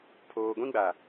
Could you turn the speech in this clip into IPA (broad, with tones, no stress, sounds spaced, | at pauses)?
pʰ oː˨ ɡʷ ĩ˦ ɡ͡b a˨